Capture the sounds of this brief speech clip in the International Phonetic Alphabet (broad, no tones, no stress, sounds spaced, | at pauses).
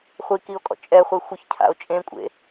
χʷ i k i o̯ kʼ ɔ̰ t͡ʃʼ ɛ χʷ e xʷ œ ç cʰ a̰ o̯ t͡ʃʼ ẽ kʷʼ ḛ